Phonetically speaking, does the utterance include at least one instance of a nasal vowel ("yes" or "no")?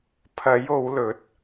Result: no